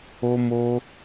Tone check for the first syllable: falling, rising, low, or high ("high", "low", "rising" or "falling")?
high